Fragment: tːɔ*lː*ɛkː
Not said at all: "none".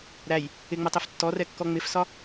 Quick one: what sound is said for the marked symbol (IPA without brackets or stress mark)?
r